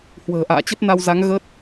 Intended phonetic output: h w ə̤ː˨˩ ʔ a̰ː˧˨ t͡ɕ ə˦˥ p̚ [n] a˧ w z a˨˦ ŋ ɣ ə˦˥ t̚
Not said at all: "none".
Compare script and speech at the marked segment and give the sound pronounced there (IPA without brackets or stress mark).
n